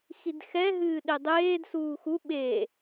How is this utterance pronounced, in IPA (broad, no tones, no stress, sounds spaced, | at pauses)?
x i d x ɛ ɦ ɨː ɗ e dˤ eː d s uː x u ɓ e